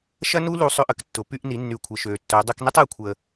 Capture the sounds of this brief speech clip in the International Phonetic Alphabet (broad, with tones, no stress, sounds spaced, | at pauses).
ʃ ɐ˦ n u˦ l u˧ sˤ ø˧ ʔ ə˨ k tː ʊ˨ p y˧ ʔ n i˨˦ nː y˨˦ kʷʰ ə˨ ʃ ø˨ tː œ˨˦ dˤ ɛ˧ k n ɪ˦ tˤ ɛ˧ kʷʰ ə˧